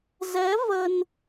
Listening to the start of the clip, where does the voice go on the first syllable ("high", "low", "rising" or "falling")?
rising